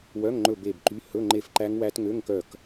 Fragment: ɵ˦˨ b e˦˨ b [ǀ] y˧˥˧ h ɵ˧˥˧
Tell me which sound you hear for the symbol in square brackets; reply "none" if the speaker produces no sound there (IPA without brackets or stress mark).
ǃ